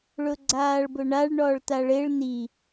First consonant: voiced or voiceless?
voiced